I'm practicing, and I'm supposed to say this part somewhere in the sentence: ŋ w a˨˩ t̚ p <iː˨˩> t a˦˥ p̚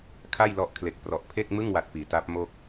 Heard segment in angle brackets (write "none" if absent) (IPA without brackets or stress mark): iː˩˦